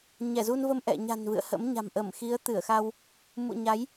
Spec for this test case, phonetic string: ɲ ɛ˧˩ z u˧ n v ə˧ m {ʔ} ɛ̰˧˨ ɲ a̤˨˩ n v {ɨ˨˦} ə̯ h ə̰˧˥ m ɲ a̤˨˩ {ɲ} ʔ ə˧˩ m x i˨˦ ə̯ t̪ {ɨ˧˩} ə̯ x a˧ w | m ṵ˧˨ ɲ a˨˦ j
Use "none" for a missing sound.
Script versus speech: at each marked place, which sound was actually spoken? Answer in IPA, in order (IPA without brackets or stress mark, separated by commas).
ʔ, ɨ̰˧˨, m, ɨ˧˩